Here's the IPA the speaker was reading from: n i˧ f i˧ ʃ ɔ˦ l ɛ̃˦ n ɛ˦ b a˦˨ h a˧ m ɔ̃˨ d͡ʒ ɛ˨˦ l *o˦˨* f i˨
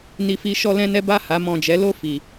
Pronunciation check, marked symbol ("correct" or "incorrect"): correct